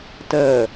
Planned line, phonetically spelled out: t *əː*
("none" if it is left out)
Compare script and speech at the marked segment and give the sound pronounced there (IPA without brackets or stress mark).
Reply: əː